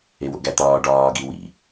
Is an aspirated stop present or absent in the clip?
absent